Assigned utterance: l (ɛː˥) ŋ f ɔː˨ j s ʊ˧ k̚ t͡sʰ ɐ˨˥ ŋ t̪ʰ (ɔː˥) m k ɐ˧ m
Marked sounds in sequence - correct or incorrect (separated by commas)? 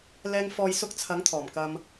incorrect, incorrect